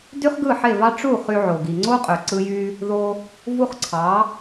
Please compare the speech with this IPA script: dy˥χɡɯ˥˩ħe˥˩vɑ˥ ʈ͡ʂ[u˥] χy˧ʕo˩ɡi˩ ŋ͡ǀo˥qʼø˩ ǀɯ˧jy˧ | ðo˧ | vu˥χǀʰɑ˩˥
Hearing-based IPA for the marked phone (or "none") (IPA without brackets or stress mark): u˥˩